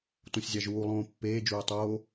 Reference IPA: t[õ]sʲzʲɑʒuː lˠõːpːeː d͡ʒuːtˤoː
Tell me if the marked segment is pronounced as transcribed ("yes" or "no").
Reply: yes